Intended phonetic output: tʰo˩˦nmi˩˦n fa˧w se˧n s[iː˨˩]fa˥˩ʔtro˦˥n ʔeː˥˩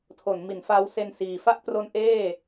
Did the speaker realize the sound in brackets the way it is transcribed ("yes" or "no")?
yes